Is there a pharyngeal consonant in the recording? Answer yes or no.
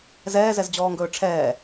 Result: no